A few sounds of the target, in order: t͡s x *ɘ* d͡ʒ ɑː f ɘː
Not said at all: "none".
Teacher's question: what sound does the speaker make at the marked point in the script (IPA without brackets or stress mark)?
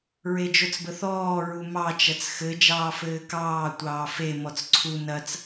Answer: ɘ